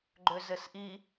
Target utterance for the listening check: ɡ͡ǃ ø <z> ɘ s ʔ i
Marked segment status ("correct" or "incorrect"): correct